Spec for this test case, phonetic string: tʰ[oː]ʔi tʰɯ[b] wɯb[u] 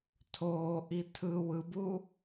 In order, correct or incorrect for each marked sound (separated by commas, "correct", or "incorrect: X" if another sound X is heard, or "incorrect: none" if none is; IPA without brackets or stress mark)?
correct, incorrect: none, correct